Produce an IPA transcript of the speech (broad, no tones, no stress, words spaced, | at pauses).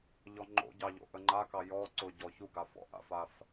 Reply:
ʎɔŋ͡ǃo̰ɟɑ ʎo̰ʔəŋ͡ǃakɑ jɔ ǀʊ ɟɔçuɡa fɔ̰ʔa̰faf